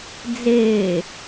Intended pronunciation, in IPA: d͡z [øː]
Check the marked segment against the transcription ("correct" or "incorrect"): incorrect